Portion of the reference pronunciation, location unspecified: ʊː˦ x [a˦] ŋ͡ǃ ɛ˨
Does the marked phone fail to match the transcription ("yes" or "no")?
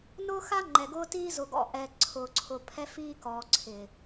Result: no